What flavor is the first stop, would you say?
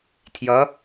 aspirated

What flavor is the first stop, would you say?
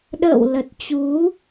implosive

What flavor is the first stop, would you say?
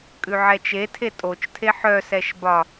ejective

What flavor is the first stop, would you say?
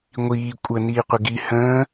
ejective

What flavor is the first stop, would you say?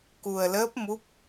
plain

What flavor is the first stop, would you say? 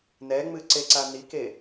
click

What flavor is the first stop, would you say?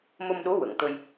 implosive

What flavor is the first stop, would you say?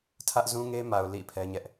aspirated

